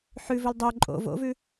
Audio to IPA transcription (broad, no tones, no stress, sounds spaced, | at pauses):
ħ ʉ v ɵ l dˤ o ǃʼ o̰ v o̰ v ʉ